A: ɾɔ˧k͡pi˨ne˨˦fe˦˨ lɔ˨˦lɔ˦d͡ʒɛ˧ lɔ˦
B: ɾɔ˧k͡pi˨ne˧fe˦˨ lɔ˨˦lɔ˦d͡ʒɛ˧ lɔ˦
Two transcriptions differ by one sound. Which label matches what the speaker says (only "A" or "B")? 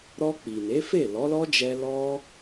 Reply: A